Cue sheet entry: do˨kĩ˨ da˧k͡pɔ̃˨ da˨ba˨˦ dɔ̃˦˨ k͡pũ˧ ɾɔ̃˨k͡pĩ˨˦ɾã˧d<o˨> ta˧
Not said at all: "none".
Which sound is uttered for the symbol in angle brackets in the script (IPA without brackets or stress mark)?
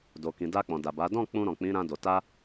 o˨